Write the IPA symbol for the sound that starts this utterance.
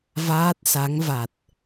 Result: v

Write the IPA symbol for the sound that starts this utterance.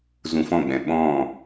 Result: z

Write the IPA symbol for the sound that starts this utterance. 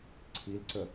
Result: ǀʰ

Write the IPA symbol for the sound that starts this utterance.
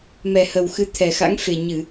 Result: m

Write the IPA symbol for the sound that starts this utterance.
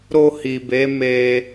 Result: ɾ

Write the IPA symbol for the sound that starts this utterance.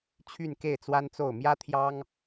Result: t͡ɕʰ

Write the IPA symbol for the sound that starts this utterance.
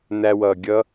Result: n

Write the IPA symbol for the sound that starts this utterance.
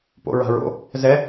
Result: p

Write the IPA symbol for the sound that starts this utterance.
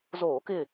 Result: z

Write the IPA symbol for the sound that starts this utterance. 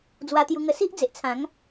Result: d͡z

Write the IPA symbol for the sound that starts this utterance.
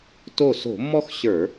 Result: t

